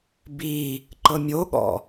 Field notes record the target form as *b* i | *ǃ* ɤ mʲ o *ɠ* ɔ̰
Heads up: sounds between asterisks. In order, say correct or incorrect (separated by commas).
correct, correct, correct